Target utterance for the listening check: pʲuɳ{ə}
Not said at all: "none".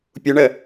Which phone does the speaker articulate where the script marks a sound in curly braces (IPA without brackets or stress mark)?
ə